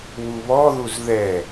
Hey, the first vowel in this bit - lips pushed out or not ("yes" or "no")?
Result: yes